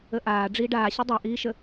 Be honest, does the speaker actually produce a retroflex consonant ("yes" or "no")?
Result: yes